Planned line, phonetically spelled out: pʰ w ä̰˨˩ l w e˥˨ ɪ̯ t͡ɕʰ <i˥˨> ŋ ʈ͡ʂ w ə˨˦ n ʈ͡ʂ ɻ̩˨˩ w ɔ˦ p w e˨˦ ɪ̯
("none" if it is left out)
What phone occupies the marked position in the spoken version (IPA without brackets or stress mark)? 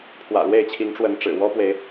i˨˦